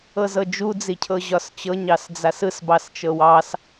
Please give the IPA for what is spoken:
ɤ z ɤ d͡ʒ u d͡z i cʰ ɤ ʑ ɒ s t͡ɕ ɤ ɲ ɑ s d͡z a s ɯ s b ɑ s t͡ʃ ɤ w ɑ s

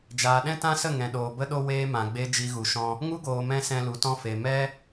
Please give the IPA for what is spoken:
d͡ʒ aː˨ ɗ ɛ̃˦ t ã˦ s ə˦˨ ŋ ɛ̃˧ ɗ oː˧ b ə˦ ɗ o˦ w eː˦ m ã˨ ɡ͡b e˦ d͡ʒ i˧ ɣ u˨ ʃ ɔ̃˧ | ŋ u˦ ɡ oː˨ m ɛ̃˧ s ɛ̃˧ l u˨ t ɔ̃˦ f e˨ m ɛ˦

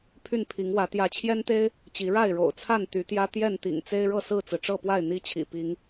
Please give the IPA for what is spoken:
pʰ y˥˨ n pʰ i˨˦ ŋ w ä˨˦ t̪ j ä˨˦ t͡ɕʰ j ɛ˦ n t̪ e˦ ɪ̯ | t͡ɕ i˨˦ ɻ a˥˨ ɪ̯ ɻ o̰˨˩ ʊ̯ t͡sʰ a˥˨ n t̪ y˨˦ t̪ j ä˦ t̪ j ɛ˥˨ n t̪ ḭ˨˩ ŋ t͡s e˦ ɪ̯ ɻ ɤ˥˨ s ɹ̩˥˨ t͡s ɹ̩˩ ʈ͡ʂ ɤ˥˨ p w a˥˨ ɪ̯ n̪ i˦ t͡ɕʰ ḭ˨˩ p i˨˦ ŋ

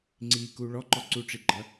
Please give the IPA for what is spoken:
ŋ͡ǀ i k u ɭ ɔ ǃ ɔ ǀ u ʈ͡ʂ i ɡ͡ǃ ɐ

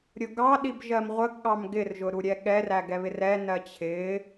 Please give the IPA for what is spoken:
ɾʲ ʊ ɡ ɑ ɗ i b ʒ ɜ m ʁʷ ə ɡ ɠ ɑ m ɡ ɪ r ʒ ʊ ɾ u ɾʲ ɛ ɠ ɛ r æ ɡ ɛ β ɪ r ɛ n ɜ t͡ɕʰ ɪ

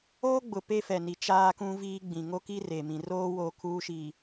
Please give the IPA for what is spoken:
oː˦ ɡ͡b ʊ˨ p e˦ f ɛ˨ n i˨ t͡ʃ aː˦ k ũ˦ v iː˦ ɡ͡b ĩ˨ ŋ o˦ k i˦ r e˨ m ĩ˨ r oː˦ w oː˨ kʰ uː˦ ʃ iː˨

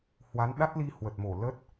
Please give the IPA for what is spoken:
h w a˨˦ n ɗ a˦˥ t̚ l i˧ h w ə˨˩ t̚ m o˧˩ l ə˦˥ t̚

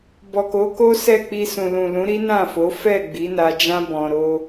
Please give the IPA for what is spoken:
b ɔ˨ k o˨˦ k o˦ s ɛ˦˨ k͡p i˧ s ũ˨ l ũ˨ l ũ˨˦ ɾ i˦ n ã˦˨ f o˨˦ f ɛ˦˨ ɡ͡b i˨˦ n a˧ d͡ʒ ã˦ b ɔ̃˧ ɾ o˦

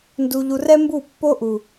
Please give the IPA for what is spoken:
n d u˧ ʎ u˧ r ɛ˦ m b u˦˨ pː o˦ ʔ u˨

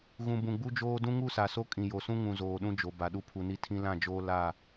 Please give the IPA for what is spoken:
ɣ ũ˨ b ũ˨ ɡ͡b u˦ d͡ʒ oː˦ d ũ˦ ŋ u˦˨ s a˨ s o˦ kʼ ĩ˨ j o˨ s ũ˦ ŋ ũ˨ z oː˨ ɗ ũ˦ d͡ʒ o˨ b a˨ ɗ u˦ pʰ u˨ n i˦ tʰ ĩ˦ l ã˦˨ d͡ʒ oː˦ l a˦˨

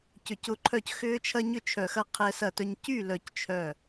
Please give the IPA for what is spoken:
c ʏ˧˩ c ʊ˦ ǃʰ œ˥˩ c x ʏː˦ t͡ʃʰ ɐ˦ ɲ ʏ˥˩ t͡ʃʰ œ˧˩ x ɐ˥˩ qʰ ɛ˦ s ɐ˥˩ t œ˦ ɲ c y˥˩ l œ˧˩ c t͡ʃʰ œ˥˩

